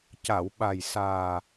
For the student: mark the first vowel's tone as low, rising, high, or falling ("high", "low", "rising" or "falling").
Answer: low